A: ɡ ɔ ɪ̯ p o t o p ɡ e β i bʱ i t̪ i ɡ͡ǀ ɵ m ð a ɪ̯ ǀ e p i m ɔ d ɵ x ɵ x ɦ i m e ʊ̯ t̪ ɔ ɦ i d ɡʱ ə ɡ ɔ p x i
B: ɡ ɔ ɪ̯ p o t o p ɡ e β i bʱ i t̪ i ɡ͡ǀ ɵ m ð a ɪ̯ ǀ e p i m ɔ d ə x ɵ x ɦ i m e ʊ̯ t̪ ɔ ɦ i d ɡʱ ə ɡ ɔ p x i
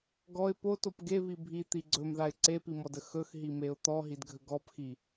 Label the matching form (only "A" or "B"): B